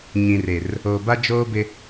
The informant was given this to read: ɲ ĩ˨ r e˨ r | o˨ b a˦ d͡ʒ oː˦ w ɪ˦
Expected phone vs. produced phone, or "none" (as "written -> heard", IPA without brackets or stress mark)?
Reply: w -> b